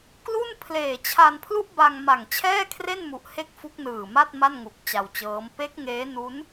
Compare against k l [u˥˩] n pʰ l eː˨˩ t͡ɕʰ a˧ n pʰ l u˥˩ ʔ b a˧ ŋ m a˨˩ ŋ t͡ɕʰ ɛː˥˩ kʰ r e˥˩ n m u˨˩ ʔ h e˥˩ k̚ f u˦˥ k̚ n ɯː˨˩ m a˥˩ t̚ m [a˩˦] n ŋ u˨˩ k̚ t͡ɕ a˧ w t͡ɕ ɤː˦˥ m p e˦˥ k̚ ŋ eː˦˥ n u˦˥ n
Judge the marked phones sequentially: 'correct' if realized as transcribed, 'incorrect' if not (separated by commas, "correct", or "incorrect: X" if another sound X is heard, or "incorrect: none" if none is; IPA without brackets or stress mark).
correct, incorrect: a˥˩